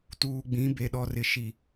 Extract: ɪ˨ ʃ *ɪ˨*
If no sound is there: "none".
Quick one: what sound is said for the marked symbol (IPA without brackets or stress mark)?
i˨